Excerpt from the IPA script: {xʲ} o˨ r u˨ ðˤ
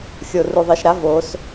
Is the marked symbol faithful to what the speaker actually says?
yes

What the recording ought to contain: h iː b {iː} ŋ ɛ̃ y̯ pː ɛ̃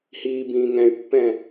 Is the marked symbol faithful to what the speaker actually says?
no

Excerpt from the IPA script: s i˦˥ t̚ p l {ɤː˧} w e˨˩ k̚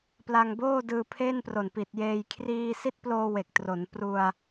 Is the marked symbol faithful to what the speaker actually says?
no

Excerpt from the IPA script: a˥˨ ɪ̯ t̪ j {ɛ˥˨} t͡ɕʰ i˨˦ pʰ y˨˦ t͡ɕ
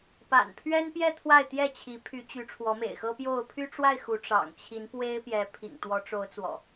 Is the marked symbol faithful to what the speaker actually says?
yes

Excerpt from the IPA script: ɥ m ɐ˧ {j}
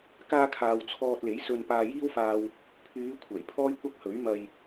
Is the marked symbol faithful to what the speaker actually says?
yes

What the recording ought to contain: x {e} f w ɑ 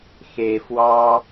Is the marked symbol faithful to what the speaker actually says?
yes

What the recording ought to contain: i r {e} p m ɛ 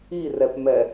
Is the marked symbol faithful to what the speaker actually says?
no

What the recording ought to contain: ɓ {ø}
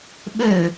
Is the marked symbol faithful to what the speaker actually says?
yes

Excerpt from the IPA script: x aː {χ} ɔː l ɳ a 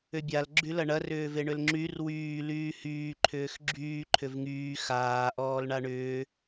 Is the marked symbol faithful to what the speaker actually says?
no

